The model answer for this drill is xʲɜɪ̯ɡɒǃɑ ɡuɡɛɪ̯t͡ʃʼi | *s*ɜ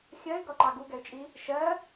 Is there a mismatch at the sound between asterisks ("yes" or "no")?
yes